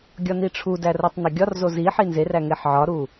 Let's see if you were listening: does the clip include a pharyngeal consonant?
yes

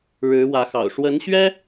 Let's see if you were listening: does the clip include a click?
no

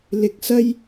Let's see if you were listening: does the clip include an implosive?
no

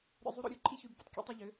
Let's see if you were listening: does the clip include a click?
yes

